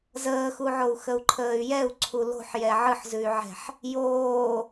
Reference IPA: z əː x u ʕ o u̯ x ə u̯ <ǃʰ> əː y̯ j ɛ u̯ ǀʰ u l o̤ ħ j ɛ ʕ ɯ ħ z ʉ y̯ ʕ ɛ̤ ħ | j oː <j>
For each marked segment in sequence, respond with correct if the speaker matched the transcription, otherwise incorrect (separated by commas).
correct, incorrect